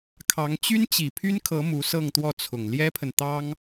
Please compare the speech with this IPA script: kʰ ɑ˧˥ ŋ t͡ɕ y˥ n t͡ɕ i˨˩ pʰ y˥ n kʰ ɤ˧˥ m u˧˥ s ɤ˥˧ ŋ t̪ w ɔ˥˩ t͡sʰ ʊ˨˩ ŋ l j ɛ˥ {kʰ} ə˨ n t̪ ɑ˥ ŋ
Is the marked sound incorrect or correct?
incorrect